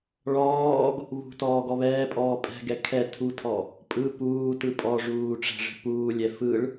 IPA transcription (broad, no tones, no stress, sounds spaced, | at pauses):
ɭ ɔː ɡ | β ṳ t ɔː ɡ ɔ β ɛː pʼ ɔː pʼ ɛ̤ ɡ ɛ kʰ ɛ tʰ u tʰ ɔ | pʼ ɯ p uː t ɯ pʼ ɔ ʐ uː ʈ͡ʂ ɛ̤ ʐ ɛ̤ p uː lʲ ɛ f ɯ ɭ